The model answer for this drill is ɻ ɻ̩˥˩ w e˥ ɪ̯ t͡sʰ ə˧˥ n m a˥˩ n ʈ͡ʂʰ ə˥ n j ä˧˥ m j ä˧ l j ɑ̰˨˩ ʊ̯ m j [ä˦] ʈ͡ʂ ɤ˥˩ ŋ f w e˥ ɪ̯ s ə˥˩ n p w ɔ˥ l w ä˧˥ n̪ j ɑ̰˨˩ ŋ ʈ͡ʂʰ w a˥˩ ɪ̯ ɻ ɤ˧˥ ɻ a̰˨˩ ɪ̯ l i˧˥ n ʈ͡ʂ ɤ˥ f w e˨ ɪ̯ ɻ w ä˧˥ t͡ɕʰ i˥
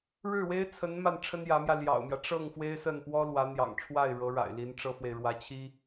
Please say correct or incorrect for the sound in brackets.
correct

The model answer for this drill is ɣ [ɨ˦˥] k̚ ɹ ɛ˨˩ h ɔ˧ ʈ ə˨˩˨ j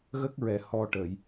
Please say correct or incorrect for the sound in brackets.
incorrect: ə˦˥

